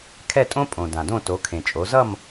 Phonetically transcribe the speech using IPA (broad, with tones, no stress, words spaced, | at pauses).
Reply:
kʰɛ˥˨tʼõ˥pʼõ˩ dã˩dõ˥˨to˩˥ kʰẽ˩t͡ʃʼo˩˥ zʌ˥˨m